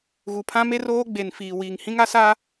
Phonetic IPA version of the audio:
ɣ u˨ pʰ ã˦ m e˦ r oː˦ ɡ͡b e˨ n f iː˨ w iː˨ ŋ h ĩ˦ ŋ a˦ s a˦

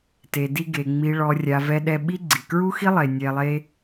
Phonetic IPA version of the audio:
t e˨ d i˧ ɡ e˨ ŋ͡m i˨ ɭ ɔ˨ rʲ a˨ v ɛ˧ ɗ ɛ˧ ɓ i˦ ɡ͡ǀ i˨ k ɹ u˦ x i˦ lˠ e˨ nʲ ɛ˧ lˠ e˦

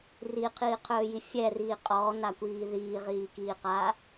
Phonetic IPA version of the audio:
r i qʰ iː qʰ ɵː j i fʲ ɛ r iː qʼ ɔː n a kʷ iː ð iː ʁ iː k iː q aː

